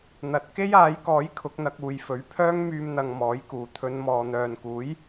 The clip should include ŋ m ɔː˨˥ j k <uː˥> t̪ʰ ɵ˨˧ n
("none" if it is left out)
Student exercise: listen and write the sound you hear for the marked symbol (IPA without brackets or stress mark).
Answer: uː˨